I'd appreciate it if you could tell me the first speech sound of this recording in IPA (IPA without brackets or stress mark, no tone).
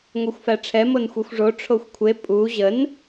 ŋʷ